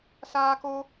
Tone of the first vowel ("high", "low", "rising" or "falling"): high